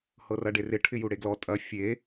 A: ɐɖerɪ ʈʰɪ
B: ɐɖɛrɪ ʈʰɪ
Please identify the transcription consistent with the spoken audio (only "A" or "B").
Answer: A